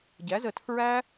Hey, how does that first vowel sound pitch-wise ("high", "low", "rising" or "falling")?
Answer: rising